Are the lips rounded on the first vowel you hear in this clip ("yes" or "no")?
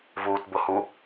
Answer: yes